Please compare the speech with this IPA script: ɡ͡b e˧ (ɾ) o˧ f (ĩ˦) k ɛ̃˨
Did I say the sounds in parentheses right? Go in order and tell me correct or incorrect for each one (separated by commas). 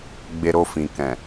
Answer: correct, incorrect